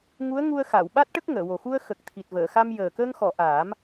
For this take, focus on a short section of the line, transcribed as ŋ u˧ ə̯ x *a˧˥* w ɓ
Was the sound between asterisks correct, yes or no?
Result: no